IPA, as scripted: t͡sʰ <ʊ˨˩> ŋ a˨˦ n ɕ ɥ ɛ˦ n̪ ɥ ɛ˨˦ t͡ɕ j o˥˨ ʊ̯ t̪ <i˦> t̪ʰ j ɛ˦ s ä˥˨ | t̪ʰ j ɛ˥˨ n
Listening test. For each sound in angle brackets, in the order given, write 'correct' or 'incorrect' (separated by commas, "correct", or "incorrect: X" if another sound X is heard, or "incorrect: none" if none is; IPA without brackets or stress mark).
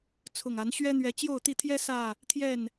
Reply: correct, incorrect: i˥˨